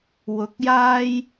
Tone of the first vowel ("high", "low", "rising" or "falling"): rising